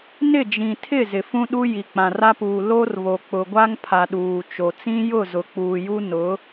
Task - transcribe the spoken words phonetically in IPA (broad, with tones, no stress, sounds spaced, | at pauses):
n ɪ˦˨ d͡ʒ ĩ˨ tʰ ɪ˦˨ z ɪ˨ f ũ˦ ɗ u˦ j i˨ k͡p ã˨ r a˦ p uː˨ l o˦ r β o˨ k͡p ʊ˨ ɡʷ a˦ ŋ pʰ a˨ ɗ uː˨ t͡ʃ o˨ t͡s ĩ˦ j ʊ˦˨ z ʊ˨ k͡p uː˨ j u˦ n ʊ˨˦